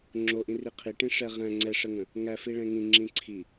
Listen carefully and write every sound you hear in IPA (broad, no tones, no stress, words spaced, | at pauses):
ŋ͡ǁoʔĩ riqʰiʈĩ ʂɛʁæ̃ ŋ͡ǀɛʂəŋə̃ | ŋæfi ɭɛ̃ŋĩ ŋ͡ǁĩǀʰi